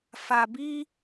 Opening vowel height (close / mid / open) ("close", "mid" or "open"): open